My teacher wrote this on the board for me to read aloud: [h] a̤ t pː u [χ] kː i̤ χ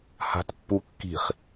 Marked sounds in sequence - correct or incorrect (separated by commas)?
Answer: correct, incorrect